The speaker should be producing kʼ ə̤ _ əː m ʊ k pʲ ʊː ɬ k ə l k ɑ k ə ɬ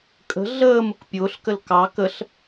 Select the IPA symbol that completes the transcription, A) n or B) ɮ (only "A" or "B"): B